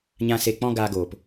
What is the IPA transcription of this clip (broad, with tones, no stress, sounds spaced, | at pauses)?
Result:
ɲ ã˨ s e˨ k͡p ɔ̃˧ ɡ aː˧ ɡ oː˨ p